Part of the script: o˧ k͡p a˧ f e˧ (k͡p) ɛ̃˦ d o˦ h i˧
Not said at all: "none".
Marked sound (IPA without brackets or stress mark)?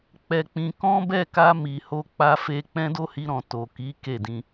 k͡p